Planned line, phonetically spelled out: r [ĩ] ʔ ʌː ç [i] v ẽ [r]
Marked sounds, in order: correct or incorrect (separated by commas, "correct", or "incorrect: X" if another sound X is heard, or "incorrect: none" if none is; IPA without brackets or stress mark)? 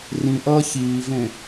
correct, incorrect: iː, incorrect: none